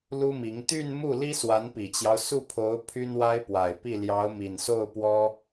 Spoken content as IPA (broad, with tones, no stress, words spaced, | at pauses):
lu˥mi˧˥ŋ t̪y˥˧nmu˥˩ li˥swa˧˥npi˨˩t͡ɕjɑ˦ʊ̯ su˥˩pʰo˧˥ʊ̯ pʰy˥nwa˥ɪ̯pwa˨˩ɪ̯pi˥˩ ljɑ˧˥ʊ̯mi˨˩nso˥˩ʊ̯pwɔ˥